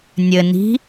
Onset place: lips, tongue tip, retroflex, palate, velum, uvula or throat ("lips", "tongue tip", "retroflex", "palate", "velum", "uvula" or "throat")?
tongue tip